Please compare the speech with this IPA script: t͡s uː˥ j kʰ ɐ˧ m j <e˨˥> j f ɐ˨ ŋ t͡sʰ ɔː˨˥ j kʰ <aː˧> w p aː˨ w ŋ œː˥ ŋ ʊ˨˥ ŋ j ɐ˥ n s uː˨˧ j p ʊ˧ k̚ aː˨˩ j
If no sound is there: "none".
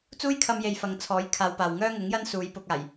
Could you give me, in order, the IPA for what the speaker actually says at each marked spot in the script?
e˨, aː˧

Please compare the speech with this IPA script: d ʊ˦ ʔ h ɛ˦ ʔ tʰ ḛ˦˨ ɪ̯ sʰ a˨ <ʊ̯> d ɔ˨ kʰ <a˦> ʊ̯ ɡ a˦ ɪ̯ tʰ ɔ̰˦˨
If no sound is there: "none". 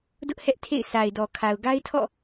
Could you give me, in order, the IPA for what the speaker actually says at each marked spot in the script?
ɪ̯, a˨

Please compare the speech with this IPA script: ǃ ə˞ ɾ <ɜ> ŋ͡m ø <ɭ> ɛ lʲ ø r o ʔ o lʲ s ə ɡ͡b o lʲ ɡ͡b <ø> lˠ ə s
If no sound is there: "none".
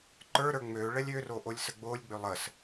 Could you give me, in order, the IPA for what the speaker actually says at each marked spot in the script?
ə˞, ɭ, ø

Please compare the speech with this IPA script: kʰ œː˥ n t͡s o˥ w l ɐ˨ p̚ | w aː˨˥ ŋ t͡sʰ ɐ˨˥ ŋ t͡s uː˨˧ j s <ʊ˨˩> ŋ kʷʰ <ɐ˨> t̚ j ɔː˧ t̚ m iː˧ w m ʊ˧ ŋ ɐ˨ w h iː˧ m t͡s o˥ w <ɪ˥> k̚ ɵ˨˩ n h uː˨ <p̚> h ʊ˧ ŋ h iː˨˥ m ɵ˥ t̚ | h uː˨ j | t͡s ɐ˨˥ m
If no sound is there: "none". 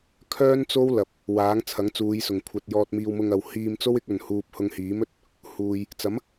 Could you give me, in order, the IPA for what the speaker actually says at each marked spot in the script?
ʊ˨˩, ɐ˨, ɪ˨˥, p̚

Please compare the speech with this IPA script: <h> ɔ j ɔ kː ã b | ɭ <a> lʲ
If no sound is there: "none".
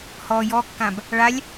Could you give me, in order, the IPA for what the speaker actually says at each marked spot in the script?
h, a

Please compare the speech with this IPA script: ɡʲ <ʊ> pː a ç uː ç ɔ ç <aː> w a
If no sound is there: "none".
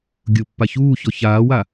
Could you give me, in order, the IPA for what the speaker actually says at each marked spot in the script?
ʊ, aː

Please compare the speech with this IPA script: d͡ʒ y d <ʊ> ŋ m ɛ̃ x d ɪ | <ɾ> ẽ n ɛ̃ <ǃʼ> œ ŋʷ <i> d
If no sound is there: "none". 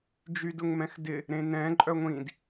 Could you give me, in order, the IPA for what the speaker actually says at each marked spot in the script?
ʊ, ɾ, ǃʼ, ĩ

